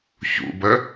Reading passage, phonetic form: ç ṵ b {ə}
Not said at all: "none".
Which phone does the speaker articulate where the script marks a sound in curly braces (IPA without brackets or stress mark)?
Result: ə